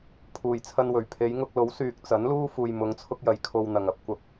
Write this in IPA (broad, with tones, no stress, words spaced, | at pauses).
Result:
pʰuː˨˩jt͡sʰɐ˧nwɵ˨˩ɥ pʰe˨˧jŋʊ˧k̚lo˨˥w syː˨k̚t͡sɐ˨˥nluː˥ fuː˨jmʊ˨˧ŋt͡sʰʊ˧k̚jɐ˨j kʰo˧wn̪ɐ˨ŋ ɐ˥p̚kʷɐ˨p̚